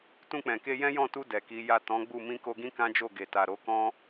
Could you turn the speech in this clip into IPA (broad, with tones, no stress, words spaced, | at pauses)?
tũ˧k͡pɛ̃˨ke˧ jɛ̃˦jɔ̃˦˨tu˧ dɛ˨ki˨˦ja˦˨ tɔ̃˨˦ ɡ͡bu˦˨ mĩ˧ko˧ɡĩ˦ kã˦d͡ʒo˦˨ɡe˨ ta˨ɾo˨˦kɔ̃˦